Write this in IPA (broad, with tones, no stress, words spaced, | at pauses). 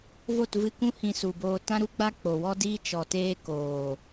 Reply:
vo˦˨tvɨ˧kũ˦ hĩ˧su˨boː˧ tã˦ɾu˦ɡ͡ba˦ k͡po˨wɔ˦diː˦ t͡ʃɔ˨teː˦ koː˨